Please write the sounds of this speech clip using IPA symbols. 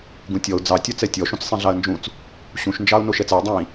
ɡ ũ tʲ ɔ ʊ̯ d͡z ɑ tʲ ɒ t͡s ɛ tʲ ɔ ʃ ũ t͡s sˤ ĩ ɮ ɑ ə̯ n d͡ʒ ũ t͡s | ɕ ũ ʃ n d͡ʒ ɑ ʊ̯ n o ʃ ɛ t͡s ɛ ə̯ dˤ ĩ

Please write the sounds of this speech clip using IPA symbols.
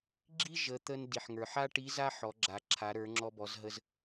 ɡ͡ǁ i˥ ʒ ə˩˧ t̪ ə˧ n d i˩ ħ ŋ ə˞˩ ħ a˥ ʈ i˧˥ z a˥ ħ ɔ˩˧ ɡ͡ǁ a˩ ǁʰ a˩˧ ɾ ə˞˩˧ ŋ͡ǁ ɔ˧ b ɔ˩˧ z ɦ ə˧ z

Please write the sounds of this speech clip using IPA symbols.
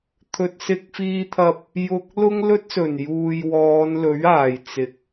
t̪ʰ ɵ˨ t̚ s ɪ˧ k̚ f iː˧ t̪ʰ ɐ˧ p̚ | j ʊ˧ k̚ l ʊ˥ ŋ l ɵ˥ t̚ s ɵ˨˩ n j uː˨ j w ɔː˨˧ n l ɵ˨˥ ɥ aː˨˩ j t͡s ɪ˨˥ k̚

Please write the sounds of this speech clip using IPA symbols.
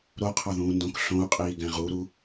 ɾ o qʰ ɒ ð ũː n d õ k ɬ õ u̯ qʼ iː ɡ æ̃ ʁ u ɾ u

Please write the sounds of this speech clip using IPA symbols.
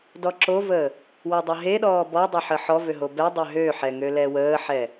d ɔ ǁ o v əː | w o dˤ ə ɦ e ɗ ɔː b ɔ dˤ e ħ ə ħ ɔ v ø ɦ o b ɛ dˤ ø ɦ ø ħ ɛ ŋ ø l ɛ w əː ħ ɛ

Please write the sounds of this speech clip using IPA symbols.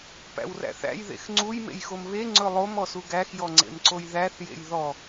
p æ̰ w r æ̰ θ æ̰ j ð ḛ x ŋ͡ǀ u j m ḛ j x o m β e ŋ͡ǀ ɵ lˠ o m ɔ s u ɡ æ x j ɔ ŋ͡ǀ ḛ m ǀ o j ð æ θ j ḛ j ð ɔ

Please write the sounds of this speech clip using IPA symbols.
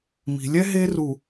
m i̤˨ lʲ ɛ˦ ɦ e˦ r u˨

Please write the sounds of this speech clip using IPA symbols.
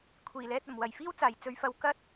kʷʰ iː˨˩ l ɛː˧ t̚ ɐ˨˩ m w ɐ˨˩ j f iː˥ w t͡s aː˨˩ j t͡s ɵ˨˧ ɥ f ɐ˨˧ w k ɐ˥ t̚

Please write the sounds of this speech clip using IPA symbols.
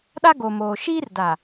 ɗ a˦ ɡ o˨ m oː˨ ʃ iː˦ r d a˨

